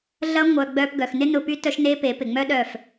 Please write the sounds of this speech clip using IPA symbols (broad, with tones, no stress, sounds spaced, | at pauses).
ɮ ɐ˦ ŋʷ œ˧ ɡ͡b œ˧ p ɡ œ˨ x n ɪ˦ n ʊ˧ p y˦ t œ˦ ʃ n e˦ p e˨˦ p ɪ˨ ŋ͡m œ˦ ɗ œ˦˨ f